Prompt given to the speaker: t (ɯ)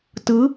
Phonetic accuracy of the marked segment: correct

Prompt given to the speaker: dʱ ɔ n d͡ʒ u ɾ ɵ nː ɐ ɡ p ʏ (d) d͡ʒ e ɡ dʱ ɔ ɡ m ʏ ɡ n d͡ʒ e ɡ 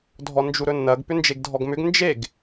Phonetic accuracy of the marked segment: incorrect: n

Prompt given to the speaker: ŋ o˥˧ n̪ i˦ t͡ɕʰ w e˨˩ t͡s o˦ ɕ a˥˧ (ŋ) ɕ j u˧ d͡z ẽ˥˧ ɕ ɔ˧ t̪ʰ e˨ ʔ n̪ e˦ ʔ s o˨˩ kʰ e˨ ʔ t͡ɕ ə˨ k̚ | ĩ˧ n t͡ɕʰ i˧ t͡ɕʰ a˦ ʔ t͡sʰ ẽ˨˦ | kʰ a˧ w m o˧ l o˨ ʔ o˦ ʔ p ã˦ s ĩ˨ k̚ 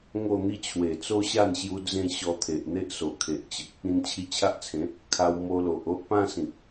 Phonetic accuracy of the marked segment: incorrect: n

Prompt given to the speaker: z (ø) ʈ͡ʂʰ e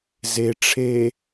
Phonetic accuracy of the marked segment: incorrect: e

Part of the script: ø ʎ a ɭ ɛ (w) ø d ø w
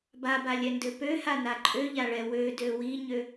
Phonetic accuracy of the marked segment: correct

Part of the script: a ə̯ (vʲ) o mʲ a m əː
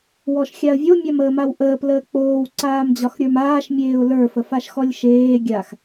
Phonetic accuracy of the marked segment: correct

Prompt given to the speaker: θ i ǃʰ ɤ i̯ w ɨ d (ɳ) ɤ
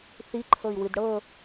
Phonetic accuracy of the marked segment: incorrect: ɽ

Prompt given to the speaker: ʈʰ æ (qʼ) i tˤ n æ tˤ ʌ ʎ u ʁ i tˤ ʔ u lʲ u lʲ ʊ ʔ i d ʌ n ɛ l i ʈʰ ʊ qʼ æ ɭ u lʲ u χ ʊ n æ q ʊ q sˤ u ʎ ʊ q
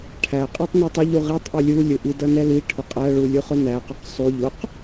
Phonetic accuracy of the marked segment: correct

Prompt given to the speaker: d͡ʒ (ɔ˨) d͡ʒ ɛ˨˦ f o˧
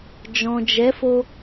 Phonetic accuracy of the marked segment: incorrect: ɔ̃˨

